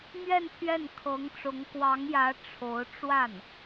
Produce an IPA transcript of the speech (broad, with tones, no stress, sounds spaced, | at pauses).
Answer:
m ɥ ɛ˥˧ n pʰ ɥ ɛ˥˩ n kʰ ɤ˧˥ ŋ ʈ͡ʂ ʊ˧˥ ŋ k w ɑ˧˥ ŋ j ä˧˥ ʈ͡ʂʰ o˧˥ ʊ̯ ʈ͡ʂ w a˥˩ n